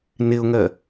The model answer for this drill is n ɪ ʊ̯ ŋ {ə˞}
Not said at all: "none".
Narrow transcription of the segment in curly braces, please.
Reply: ɜ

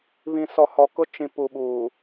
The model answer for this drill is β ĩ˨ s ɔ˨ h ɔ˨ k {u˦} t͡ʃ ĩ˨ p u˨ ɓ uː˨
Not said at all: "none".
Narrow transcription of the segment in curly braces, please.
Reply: ʊ˦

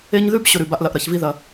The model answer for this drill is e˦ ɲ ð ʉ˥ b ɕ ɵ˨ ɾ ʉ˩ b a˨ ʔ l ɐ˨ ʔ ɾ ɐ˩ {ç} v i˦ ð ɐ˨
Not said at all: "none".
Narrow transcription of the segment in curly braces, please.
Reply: ç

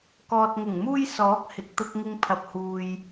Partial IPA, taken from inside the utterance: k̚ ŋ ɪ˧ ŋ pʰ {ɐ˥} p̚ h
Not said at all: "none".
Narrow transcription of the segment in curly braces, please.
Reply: ɐ˨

